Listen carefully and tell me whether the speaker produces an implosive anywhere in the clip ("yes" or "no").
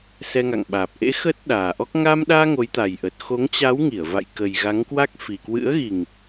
yes